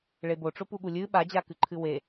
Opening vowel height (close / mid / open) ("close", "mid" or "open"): mid